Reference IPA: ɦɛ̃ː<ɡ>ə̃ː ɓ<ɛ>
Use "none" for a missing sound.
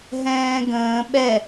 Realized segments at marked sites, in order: ɡ, ɛ

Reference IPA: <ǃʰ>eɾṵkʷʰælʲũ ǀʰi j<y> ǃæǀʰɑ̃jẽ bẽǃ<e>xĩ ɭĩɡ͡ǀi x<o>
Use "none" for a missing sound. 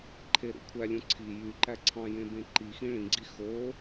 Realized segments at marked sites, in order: ǃʰ, y, i, o

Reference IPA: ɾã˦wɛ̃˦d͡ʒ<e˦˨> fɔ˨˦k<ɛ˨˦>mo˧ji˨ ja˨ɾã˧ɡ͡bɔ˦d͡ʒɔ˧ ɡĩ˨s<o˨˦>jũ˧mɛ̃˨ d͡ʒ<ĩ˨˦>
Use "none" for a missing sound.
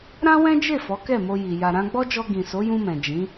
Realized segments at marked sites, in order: e˦˨, ɛ˦˨, o˨˦, ĩ˨˦

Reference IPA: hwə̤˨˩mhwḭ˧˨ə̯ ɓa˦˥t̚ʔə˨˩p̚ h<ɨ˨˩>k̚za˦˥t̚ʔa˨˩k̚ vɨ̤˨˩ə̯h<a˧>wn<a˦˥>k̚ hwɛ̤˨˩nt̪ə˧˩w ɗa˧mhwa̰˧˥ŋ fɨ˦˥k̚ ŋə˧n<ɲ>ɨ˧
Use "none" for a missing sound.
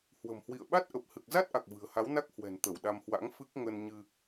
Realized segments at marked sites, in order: ɨ˨˩, a˨˦, a˦˥, ɲ

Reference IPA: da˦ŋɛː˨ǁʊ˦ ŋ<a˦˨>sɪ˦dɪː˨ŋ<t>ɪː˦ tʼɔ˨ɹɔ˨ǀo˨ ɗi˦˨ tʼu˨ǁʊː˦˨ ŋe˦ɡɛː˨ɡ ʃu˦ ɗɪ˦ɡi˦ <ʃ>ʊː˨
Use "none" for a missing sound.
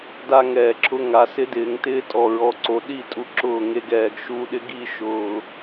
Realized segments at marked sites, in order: a˨, t, ʃ

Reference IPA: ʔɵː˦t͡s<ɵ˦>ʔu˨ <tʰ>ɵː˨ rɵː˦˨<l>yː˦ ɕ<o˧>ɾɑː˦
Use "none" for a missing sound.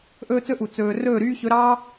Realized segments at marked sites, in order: ɵ˦, t͡s, ɾ, ɵ˧

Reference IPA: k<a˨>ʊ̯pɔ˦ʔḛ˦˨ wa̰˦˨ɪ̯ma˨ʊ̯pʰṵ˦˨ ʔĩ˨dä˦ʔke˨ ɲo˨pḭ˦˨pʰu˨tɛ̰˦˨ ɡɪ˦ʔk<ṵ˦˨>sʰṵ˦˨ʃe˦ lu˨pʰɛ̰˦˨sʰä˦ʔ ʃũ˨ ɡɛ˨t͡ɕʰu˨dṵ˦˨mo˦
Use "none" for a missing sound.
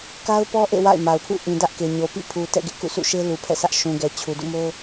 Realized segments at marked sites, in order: a˦, ṵ˦˨

